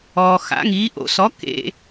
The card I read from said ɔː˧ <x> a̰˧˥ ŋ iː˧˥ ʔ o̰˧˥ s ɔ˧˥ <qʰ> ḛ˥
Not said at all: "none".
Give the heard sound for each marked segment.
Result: x, k

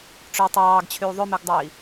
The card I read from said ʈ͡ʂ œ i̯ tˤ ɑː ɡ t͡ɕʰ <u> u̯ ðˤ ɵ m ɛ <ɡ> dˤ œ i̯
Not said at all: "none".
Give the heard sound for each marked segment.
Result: y, ɡ

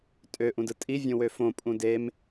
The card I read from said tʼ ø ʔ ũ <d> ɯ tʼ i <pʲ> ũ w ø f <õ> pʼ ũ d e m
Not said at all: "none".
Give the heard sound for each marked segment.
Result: d, vʲ, õ

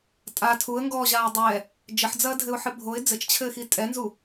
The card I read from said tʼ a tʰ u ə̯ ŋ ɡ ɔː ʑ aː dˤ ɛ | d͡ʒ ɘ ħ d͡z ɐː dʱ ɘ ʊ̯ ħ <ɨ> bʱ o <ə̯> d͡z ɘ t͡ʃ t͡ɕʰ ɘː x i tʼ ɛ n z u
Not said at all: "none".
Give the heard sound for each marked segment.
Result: ɨ, ɪ̯

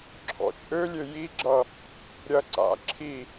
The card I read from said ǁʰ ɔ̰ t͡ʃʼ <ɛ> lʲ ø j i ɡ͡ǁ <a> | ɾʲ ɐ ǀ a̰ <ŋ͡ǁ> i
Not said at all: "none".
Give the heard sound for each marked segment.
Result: ø, ʌ, ǁʰ

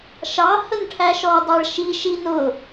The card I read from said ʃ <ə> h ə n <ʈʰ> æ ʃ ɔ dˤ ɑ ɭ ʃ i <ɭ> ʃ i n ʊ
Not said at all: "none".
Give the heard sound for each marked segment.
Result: ɑ, ʈʰ, none

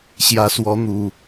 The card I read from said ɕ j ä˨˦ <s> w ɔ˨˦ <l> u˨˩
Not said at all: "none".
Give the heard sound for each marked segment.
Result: s, n̪

